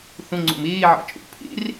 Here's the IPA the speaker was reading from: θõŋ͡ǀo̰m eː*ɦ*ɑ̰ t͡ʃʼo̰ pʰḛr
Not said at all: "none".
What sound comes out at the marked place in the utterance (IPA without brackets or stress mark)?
ʕ